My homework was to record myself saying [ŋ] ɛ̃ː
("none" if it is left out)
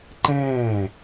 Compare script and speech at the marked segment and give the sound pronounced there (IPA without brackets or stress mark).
ǃ